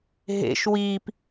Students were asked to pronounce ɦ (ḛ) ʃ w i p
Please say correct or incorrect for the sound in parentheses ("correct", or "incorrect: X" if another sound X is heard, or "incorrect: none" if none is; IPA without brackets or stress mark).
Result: correct